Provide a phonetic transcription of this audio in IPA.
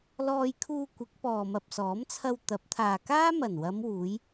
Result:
lɔː˧jkʰuː˧kʷɪ˨˥k̚ pɔː˨mɐ˨p̚sɔː˨˥mt͡sʰɐ˧w t̪ɐ˨˥p̚t̪ʰaː˨kaː˥ mɐ˨˩nwɐ˨˧mwuː˨˧j

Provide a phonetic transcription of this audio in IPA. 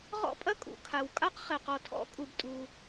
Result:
ʁɔ̰˥pʼɐ˥kʼṵ˩ kʰa˩w kʼa˥qχɛ˩ qɔ˩tʰɔ̰˥kʼu˩btʼu˩

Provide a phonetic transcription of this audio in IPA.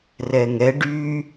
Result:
rɛŋɛ ɖy

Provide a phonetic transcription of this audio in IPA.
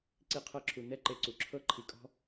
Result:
ǀi˧qʰɤ˧ǁʰu˨ nɛ˦ǃe˧ǀu˨ǁʰɤ˦ ǃʰi˨kʼɔ̤˦

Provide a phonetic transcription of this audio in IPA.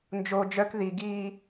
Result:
nd͡ʒo d͡ʒœk ðiɡiː

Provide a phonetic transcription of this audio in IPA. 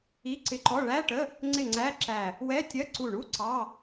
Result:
i˧˥˧ǀɪ˧˥˧ǃɔ˧˥˧ ɭæ˧˥˧ʈə˧˥˧ | ŋ͡ǀɪ˧˩ ŋ͡ǀæ˧˥˧ǁæ˧˩ | wɛ˧˥˧tʲɜ˧˥˧ ǀu˧˩ɳu˧˥˧ ǀɑ˧˥˧

